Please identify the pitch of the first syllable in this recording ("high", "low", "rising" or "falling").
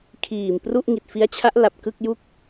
low